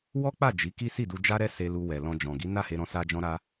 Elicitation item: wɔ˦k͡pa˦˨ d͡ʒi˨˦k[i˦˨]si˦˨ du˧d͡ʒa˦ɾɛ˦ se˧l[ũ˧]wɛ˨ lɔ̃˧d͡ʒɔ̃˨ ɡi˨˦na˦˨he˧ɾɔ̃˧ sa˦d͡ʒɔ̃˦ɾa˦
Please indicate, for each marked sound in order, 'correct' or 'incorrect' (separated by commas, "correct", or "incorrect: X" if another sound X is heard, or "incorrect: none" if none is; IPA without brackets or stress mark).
incorrect: i˦, incorrect: u˧